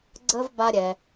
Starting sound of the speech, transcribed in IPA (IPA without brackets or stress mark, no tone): ɡ͡ǀ